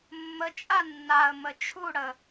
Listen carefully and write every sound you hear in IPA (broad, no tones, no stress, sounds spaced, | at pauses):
mː ə t͡ʃʼ a nː a ə̯ m ə t͡ʃʰ u ɽ ə